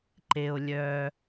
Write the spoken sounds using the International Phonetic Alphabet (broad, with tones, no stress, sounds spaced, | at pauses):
ǃ e˩ o̯ lʲ œ˩